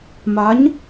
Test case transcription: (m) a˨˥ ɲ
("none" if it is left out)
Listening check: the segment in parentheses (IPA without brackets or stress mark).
m